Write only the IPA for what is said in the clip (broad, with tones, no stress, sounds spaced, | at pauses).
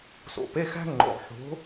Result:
s o̰˨˩ p e˧˥˧ x æ̤˥ ŋ͡ǃ o̰˨˩ ʁ ħ o̤˨˥